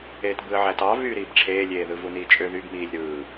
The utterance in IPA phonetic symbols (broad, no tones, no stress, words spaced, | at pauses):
eːtbɯə̯ʕætɑ vyːɾiːbʈ͡ʂʰeːlʲeː ðɯvuniːt͡ʃʼø ðybmiːlʲ ɾɯː